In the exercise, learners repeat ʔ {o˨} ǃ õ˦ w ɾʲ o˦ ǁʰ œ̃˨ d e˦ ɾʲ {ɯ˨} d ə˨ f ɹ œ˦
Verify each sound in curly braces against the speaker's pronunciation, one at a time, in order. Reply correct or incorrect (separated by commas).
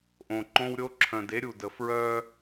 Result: incorrect, incorrect